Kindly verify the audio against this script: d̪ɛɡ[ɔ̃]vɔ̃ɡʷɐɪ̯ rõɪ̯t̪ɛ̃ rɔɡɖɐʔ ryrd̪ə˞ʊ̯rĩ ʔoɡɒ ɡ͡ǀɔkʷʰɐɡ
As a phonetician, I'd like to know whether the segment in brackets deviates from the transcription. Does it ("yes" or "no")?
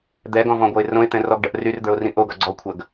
no